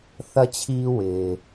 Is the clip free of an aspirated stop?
no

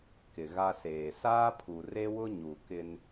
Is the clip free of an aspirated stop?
no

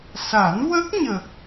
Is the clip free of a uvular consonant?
yes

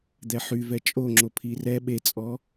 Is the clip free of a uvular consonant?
yes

